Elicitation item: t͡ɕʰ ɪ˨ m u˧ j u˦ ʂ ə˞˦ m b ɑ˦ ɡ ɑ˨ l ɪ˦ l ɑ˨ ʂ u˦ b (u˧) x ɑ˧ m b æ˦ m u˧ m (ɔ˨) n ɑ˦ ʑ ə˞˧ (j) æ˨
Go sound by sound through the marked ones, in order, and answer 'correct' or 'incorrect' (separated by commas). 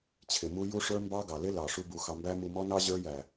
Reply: correct, incorrect, correct